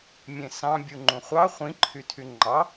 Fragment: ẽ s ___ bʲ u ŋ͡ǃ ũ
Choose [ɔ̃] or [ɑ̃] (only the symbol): ɑ̃